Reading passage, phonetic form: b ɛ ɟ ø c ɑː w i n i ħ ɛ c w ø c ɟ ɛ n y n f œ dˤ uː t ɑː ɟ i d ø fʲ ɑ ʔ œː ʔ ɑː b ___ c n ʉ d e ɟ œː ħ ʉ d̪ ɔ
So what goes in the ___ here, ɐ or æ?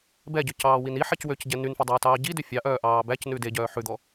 æ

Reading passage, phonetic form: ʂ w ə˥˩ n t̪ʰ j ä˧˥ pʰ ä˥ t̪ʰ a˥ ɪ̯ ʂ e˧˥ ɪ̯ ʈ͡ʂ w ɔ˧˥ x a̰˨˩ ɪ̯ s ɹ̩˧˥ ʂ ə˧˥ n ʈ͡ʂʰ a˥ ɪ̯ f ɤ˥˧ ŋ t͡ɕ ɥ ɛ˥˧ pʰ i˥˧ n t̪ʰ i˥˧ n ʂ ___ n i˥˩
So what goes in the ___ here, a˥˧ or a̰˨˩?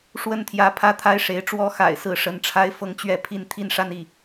a˥˧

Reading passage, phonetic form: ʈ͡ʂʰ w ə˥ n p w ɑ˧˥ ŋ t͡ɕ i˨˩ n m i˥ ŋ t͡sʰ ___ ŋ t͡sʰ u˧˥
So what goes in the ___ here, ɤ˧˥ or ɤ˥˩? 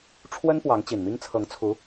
ɤ˧˥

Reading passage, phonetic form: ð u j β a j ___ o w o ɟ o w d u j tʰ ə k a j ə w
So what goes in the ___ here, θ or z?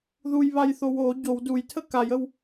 θ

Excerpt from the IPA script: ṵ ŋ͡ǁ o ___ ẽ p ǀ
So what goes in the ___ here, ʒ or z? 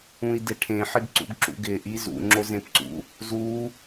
z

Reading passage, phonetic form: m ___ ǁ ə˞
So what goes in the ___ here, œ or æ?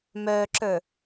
œ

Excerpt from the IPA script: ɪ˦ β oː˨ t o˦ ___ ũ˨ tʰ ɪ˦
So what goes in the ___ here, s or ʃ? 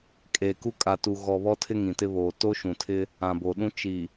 ʃ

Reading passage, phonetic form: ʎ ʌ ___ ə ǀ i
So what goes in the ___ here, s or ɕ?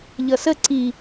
s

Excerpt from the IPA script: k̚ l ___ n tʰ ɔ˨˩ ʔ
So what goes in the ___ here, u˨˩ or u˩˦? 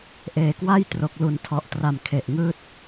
u˩˦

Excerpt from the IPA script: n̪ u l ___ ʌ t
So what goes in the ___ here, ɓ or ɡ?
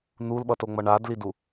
ɓ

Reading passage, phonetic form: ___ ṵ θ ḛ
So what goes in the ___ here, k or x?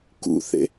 k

